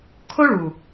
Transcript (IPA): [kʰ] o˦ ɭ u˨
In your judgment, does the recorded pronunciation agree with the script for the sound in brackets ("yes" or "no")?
yes